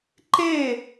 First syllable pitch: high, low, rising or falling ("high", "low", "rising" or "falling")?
falling